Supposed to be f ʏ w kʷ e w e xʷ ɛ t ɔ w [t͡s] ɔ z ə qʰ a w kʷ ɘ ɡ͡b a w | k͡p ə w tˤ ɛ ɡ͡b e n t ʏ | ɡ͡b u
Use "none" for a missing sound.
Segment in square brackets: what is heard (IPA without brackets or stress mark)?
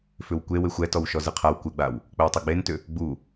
ʃ